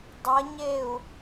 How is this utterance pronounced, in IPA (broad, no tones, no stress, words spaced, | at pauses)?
dˤɐɲeu̯